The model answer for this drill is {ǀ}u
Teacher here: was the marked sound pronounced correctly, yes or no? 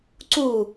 yes